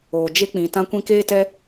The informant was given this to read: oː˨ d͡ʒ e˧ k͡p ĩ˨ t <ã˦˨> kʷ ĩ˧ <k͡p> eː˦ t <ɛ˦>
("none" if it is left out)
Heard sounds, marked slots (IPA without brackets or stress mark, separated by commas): ã˧, k, ɛ˦